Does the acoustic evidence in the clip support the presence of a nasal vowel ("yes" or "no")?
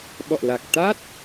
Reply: no